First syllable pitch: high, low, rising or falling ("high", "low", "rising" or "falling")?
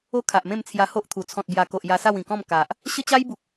high